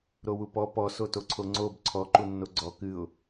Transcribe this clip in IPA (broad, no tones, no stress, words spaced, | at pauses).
ɾowupɔ pɔ sotoǀʰoŋ͡ǀob ǀʰɔ ǃunːoɡ͡ǀɔ kɨʊ̯